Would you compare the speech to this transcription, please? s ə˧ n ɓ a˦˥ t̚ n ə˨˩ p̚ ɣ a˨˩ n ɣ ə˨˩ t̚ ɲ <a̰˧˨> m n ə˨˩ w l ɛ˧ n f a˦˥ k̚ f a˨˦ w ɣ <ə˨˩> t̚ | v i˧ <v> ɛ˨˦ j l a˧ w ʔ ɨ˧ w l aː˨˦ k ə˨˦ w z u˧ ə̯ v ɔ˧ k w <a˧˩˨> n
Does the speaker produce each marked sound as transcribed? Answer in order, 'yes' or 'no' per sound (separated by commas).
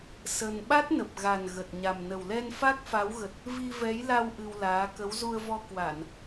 no, yes, yes, yes